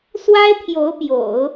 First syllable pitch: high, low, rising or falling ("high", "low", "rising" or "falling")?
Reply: high